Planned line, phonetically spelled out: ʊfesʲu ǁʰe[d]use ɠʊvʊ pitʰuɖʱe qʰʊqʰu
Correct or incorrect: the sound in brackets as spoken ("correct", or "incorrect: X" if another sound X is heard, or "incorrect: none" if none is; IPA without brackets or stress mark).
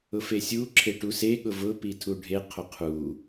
incorrect: ʈ